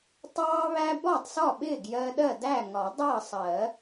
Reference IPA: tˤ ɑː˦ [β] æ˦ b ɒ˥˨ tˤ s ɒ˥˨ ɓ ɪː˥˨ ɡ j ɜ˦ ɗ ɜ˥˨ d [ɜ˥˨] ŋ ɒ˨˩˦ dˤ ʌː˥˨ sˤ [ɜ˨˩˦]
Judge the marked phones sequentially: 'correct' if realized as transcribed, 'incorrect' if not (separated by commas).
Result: correct, incorrect, correct